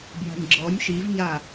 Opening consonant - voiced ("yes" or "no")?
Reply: yes